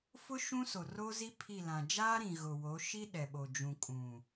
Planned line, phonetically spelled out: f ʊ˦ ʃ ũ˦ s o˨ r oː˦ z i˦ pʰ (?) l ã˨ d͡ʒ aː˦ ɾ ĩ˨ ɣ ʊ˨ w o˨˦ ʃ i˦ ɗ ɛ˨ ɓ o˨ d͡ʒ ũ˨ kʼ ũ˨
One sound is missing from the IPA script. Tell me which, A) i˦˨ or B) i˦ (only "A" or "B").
A